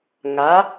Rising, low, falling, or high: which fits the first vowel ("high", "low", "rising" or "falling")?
rising